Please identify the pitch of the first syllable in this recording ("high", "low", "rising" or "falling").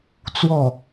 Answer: falling